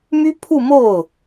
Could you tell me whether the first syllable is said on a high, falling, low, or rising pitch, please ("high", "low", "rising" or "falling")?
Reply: high